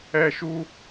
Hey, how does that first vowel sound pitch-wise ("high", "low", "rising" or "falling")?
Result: high